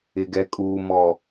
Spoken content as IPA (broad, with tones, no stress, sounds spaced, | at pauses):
ɪ˨ ɡ ɛ˨ kʼ uː˨ m ɔ˨